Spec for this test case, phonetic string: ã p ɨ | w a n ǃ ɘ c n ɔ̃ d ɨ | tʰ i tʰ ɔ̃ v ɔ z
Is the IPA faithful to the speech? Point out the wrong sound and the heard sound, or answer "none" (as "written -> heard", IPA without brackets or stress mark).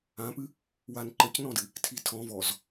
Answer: none